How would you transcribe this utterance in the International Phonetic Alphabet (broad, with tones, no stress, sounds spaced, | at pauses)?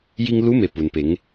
j i˧ ŋ l u˧˥ m e˩˧ p u˩ n p e˩˧ ŋ